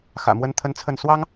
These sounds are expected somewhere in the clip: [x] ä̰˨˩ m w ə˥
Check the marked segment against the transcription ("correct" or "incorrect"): correct